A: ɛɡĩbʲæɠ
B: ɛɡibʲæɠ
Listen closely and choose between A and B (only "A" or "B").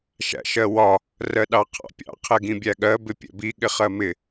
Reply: A